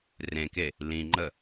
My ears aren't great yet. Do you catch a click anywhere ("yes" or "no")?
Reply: yes